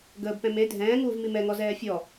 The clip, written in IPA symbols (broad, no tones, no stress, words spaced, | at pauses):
ɡəːbpɛ̃ me dʱɛ̃ːŋuːvmi mɛŋɔzɛː fʲɔ